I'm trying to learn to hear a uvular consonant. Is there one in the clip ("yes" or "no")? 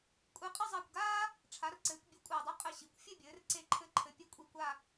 yes